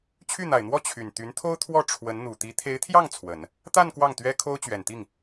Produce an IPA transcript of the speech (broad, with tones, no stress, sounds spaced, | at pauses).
t͡ɕʰ y˥˩ n̪ a˨˩ ɪ̯ n̪ w ɔ˥˩ t͡ɕʰ y˨˩ n t̪ y˧˥ n t̪ʰ o˥ ʊ̯ t̪ʰ w ɔ˥˩ ʈ͡ʂʰ w ə˧˥ n n̪ u˨˩ t̪ i˧˥ t̪ʰ e˧˥ ɪ̯ t̪ʰ j ɑ˥˩ ŋ t͡sʰ w ə˨˩˦ n | t̪ a˥˧ n k w ɑ˥˩ ŋ t̪ ɥ ɛ˥ kʰ o˥ ʊ̯ t͡ɕ ɥ ɛ˨˩ n t̪ i˥˩ ŋ